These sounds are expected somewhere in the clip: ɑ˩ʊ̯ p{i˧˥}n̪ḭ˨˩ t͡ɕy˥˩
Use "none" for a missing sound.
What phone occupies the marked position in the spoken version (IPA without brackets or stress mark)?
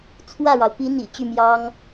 i˧˥